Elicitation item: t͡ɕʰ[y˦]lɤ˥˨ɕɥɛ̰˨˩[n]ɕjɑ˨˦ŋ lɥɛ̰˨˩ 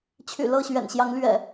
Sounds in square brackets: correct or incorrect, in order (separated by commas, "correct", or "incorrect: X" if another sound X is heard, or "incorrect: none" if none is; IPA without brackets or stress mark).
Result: incorrect: y̰˨˩, correct